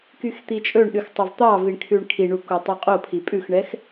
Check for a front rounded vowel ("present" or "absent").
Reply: present